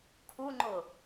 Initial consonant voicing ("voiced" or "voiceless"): voiceless